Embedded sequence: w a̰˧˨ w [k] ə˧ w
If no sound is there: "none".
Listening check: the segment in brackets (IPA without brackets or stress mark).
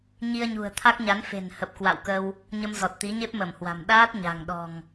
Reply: k